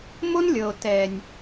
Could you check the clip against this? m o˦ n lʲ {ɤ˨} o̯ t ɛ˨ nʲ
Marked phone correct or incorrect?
correct